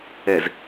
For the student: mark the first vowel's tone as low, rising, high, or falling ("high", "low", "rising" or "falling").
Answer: low